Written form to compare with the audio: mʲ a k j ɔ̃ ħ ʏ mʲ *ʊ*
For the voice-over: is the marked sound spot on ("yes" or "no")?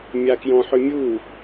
no